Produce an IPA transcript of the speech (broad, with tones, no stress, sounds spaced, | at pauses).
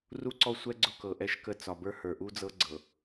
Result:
r u˦ ǀ ɔ˦˨ sʷ ɛ˦ ɡ͡ǀ ʊ˦ k ɤ˨ ʔ ɛ˦ ʃ k ə˦˨ t͡s ɒ˨ b ə˞˦ h ə˞˨ ʔ u˦ d͡z ɤ˦ ɡ͡ǀ ɤ˨